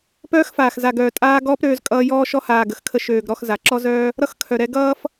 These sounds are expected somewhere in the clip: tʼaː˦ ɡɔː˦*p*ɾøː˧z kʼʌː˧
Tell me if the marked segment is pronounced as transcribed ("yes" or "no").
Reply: yes